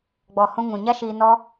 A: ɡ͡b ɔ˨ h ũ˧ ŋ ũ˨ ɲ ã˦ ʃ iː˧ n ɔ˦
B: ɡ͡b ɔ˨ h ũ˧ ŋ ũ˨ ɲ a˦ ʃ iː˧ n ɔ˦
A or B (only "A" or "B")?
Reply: B